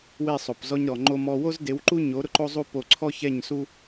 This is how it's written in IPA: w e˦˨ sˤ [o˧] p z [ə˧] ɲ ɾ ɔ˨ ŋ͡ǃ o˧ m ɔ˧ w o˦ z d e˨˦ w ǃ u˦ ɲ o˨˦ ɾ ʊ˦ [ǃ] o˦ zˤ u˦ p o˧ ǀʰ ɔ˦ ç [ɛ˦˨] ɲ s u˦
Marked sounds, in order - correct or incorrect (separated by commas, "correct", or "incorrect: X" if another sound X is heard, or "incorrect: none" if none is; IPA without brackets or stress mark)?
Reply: incorrect: o˨, incorrect: ɔ˧, correct, correct